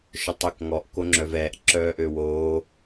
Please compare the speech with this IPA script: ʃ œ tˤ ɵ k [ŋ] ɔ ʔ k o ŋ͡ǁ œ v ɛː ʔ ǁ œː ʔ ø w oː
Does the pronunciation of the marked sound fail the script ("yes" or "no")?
no